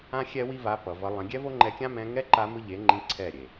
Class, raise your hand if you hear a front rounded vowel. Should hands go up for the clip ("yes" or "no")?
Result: no